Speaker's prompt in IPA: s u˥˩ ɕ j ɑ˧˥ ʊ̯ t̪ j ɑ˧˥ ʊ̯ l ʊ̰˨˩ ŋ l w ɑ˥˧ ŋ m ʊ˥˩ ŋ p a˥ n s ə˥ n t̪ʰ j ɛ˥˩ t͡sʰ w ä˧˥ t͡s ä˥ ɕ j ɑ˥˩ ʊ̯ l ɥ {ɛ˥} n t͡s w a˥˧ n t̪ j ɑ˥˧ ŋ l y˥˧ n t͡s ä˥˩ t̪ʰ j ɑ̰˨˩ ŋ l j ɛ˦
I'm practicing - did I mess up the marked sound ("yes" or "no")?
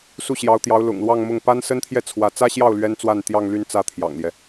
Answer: no